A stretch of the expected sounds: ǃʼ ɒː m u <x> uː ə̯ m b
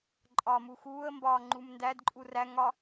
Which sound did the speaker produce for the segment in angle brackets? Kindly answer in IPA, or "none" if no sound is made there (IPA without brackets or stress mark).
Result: x